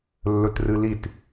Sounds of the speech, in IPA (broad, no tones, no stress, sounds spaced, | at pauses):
lː ɵ t r ɨ l i t